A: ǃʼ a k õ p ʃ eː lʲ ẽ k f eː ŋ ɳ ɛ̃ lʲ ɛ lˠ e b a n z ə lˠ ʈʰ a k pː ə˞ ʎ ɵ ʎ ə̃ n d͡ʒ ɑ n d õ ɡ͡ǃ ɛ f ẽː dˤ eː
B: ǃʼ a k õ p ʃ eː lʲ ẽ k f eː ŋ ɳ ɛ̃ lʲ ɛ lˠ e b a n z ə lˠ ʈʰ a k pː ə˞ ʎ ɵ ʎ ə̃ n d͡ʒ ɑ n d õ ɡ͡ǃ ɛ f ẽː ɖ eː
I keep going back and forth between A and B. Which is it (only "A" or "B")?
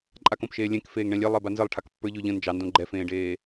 B